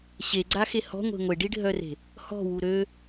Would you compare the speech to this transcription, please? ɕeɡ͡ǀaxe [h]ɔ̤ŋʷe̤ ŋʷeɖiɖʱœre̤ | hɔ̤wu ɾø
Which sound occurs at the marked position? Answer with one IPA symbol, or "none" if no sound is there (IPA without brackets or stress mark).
h